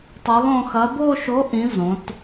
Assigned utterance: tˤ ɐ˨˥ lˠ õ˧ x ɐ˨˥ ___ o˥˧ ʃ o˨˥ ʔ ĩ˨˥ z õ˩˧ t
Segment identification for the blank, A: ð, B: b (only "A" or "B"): B